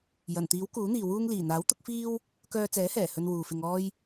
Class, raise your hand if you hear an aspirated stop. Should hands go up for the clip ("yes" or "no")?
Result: no